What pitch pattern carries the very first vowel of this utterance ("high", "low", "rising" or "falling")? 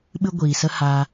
high